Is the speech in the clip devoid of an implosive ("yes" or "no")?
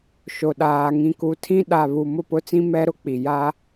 no